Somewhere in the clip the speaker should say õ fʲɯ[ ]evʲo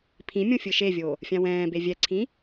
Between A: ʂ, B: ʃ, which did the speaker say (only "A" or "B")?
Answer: B